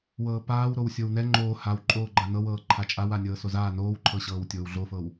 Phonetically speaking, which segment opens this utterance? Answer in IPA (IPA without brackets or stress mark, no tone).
w